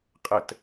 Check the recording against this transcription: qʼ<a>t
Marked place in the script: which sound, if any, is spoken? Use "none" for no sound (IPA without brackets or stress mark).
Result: ə